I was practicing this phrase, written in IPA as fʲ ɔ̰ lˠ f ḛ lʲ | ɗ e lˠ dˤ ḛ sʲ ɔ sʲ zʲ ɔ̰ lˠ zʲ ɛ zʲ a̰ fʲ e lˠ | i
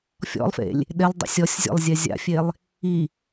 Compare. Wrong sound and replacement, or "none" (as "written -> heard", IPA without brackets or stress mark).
none